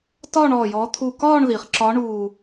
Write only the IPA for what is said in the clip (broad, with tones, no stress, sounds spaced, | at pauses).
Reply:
t ɒː˥˧ ɳ ɔː˧˩ j ɔː˨˦ t̪ʰ u˧˩ k ɒː˥˧ ɳ ð i˩ χ ǁ ɒ˨˦ ɳ uː˧˩